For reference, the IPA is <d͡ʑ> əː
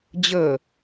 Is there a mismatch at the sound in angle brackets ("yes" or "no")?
no